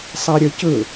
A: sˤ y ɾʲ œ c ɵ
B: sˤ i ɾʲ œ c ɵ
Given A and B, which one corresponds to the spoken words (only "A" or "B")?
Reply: B